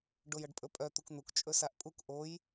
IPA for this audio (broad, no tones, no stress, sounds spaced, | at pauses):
ɖ o j ʌ ɖ pʼ ɵ pʼ œ t̪ u k n̪ u k t͡ʃʼ ɵ s a ʔ pʼ u k ʔ o j